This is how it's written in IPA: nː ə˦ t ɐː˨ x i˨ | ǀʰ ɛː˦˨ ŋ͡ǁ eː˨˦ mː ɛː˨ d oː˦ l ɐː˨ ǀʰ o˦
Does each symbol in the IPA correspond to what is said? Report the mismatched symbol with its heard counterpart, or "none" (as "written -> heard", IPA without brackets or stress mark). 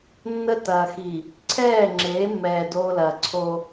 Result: none